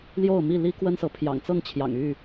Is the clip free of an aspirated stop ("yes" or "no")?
no